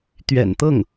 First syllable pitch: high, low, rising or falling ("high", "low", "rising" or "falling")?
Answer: low